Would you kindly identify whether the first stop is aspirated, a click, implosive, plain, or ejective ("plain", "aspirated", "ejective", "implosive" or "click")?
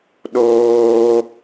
implosive